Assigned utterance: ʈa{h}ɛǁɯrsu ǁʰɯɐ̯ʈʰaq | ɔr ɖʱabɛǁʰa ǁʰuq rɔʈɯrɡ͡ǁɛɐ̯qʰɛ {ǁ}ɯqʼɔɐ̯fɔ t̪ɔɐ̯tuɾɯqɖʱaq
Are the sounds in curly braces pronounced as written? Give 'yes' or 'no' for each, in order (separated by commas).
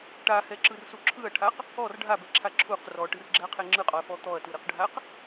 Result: yes, no